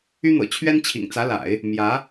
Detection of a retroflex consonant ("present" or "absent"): absent